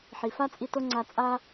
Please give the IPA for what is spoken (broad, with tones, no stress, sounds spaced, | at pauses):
ħ i˩ f a˥ t͡sʼ i˧ t o˥ ŋ͡ǀ a˧ t͡sʼ a˥